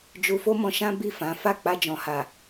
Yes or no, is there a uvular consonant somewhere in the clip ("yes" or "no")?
no